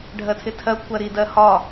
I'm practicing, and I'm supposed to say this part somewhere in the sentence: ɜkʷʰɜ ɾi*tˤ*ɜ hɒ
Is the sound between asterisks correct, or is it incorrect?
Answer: incorrect